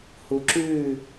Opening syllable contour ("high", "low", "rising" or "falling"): rising